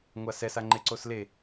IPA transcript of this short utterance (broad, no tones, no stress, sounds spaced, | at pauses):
ŋʷ a s ɛ s a ŋ͡ǃ e ǀ o s l e